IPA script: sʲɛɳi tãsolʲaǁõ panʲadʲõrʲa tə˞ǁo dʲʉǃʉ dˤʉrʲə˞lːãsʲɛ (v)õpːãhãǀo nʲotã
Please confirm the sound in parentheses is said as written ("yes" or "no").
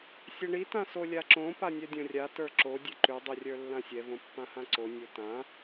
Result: yes